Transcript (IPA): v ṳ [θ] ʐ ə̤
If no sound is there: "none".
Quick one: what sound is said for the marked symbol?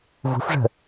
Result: f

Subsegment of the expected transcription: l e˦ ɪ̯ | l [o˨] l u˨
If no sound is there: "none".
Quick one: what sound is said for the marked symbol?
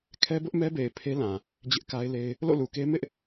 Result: o̰˦˨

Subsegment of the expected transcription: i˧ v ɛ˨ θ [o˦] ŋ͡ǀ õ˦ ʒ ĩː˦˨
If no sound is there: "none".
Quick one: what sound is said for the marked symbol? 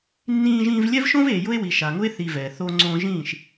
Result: o˦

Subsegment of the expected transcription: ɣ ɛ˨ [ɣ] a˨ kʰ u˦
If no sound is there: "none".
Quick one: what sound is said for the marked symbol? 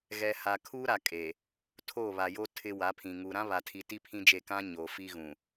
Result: h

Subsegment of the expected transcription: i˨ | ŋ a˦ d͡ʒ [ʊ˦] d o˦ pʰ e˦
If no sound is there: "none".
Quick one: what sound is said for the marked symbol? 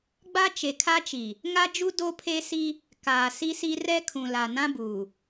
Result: u˦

